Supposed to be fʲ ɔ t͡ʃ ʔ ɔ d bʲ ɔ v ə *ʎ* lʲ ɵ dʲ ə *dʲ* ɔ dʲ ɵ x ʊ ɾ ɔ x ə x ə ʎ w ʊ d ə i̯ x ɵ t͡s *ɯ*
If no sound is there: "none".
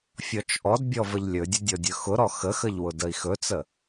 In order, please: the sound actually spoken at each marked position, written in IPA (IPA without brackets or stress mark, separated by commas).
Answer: ʎ, dʲ, ə